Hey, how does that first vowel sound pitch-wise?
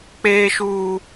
high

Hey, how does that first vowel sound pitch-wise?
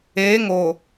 rising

